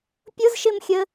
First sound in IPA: pʲ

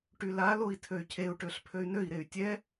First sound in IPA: ʈ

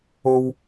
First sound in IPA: o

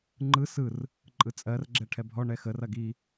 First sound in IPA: ŋ͡ǃ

